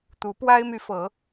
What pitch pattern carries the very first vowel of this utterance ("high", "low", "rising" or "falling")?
rising